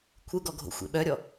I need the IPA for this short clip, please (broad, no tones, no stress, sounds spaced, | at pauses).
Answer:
kʷʰ ɯ ɡ ɔ ɡʱ o̰ xʷ ḛ ɓ œ ɾʲ ɔ